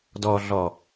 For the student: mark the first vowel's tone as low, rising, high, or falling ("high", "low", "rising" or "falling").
low